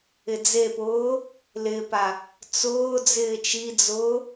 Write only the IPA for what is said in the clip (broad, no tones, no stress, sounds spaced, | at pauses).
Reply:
ɪ d͡z e p ʊː | l ɪː p a | t͡s ʊː d͡z ɪː t͡ʃ i d͡z ʊː